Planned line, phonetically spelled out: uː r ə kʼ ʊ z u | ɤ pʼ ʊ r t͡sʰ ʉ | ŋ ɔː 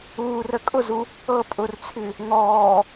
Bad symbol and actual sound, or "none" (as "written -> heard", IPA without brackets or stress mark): none